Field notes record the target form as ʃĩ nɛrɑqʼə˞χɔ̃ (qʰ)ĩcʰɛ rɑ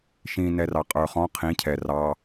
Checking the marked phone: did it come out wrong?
no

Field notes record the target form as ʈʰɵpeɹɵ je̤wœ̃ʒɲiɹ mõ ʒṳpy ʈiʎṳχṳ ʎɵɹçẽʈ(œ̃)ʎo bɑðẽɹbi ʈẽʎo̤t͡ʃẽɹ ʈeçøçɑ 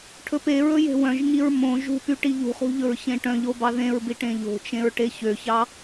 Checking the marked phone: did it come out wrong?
no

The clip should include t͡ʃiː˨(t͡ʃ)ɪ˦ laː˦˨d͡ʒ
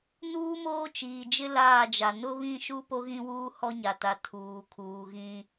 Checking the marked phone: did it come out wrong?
yes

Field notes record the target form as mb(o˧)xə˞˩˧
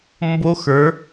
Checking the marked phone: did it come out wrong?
no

